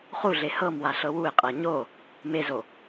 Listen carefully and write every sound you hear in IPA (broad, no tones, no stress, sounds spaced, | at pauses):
χ u ɮ e h ɤ m w a ɬ ɤ w u ɪ̯ qʼ ɤ ɲ o | m e z o